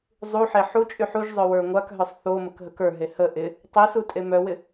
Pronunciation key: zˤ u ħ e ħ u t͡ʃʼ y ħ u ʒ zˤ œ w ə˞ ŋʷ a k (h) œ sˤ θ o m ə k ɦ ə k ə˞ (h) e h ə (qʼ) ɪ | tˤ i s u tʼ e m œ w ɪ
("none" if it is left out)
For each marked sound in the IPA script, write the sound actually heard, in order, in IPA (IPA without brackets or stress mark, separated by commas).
ɦ, ɦ, ʔ